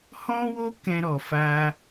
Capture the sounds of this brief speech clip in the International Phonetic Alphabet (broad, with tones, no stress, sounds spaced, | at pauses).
h ɔ̃˦ w o˦ k ɛ̃˦ ɾ ɔ˧ f a˦